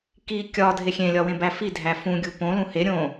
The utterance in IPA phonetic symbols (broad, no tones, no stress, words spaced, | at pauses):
ki kʲɒ dʱexʲẽ lʲɒwẽbæfi dʱæfũ ɡʲupõ lũhe ɾʲõ